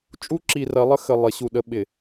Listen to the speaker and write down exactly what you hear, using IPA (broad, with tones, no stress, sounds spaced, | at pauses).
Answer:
t͡ʃʼ u˦ ǁ i˨ r ɐ˨˦ lˠ ə˦ x ə˨ lˠ ɪ˨˦ ɕ u˨ ɗ ə˦ ɓ ɪ˨